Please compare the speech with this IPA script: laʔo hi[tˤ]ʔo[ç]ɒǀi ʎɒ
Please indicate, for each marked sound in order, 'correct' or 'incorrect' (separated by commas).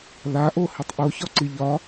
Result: correct, correct